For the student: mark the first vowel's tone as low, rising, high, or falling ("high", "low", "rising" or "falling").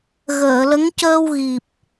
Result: low